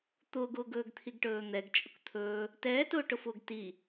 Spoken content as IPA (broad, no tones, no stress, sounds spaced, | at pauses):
t̪ ʊː ɡ ʊː ɡ ɵː ɡ t̪ʰ i ɡ ʈ ɵː n̪ ɛ ɡ t͡ʃʼ ʊ k t̪ʰ ɵː | t ɛː t ʊː ʈ ʊ f ʊː ɡ t i